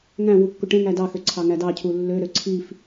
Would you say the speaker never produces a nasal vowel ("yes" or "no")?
no